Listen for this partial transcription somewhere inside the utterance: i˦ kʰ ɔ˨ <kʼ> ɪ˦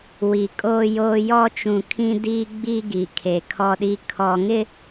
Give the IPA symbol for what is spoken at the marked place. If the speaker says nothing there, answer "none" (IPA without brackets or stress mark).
ŋ